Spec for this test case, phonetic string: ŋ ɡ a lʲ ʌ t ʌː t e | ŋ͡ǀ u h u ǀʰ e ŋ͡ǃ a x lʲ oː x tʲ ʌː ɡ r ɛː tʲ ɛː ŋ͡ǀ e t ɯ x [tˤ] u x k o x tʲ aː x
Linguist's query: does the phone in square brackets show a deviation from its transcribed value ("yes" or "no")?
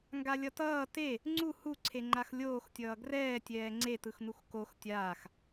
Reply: yes